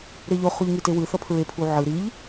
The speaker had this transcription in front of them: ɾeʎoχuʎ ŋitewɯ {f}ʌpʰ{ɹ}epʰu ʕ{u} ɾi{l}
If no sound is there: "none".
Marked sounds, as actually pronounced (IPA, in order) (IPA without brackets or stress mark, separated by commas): θ, ɹ, ɯ, ʎ